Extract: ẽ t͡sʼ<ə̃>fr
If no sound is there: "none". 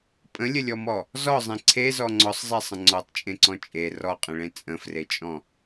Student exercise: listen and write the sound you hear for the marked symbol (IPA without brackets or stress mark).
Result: ə̃